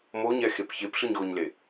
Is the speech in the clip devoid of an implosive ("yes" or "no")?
yes